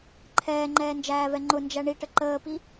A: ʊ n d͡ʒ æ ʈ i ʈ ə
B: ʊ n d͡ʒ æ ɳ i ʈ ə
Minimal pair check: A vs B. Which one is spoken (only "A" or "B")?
B